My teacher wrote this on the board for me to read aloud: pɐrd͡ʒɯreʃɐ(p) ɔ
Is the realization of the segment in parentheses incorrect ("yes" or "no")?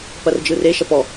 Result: no